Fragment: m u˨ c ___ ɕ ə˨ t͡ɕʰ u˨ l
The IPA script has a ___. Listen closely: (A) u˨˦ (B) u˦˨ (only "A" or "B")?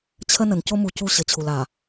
B